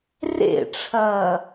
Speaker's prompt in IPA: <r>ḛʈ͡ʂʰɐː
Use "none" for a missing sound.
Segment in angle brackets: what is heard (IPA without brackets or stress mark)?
r